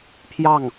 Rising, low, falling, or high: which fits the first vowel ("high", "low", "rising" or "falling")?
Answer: falling